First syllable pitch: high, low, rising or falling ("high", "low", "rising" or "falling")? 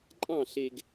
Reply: falling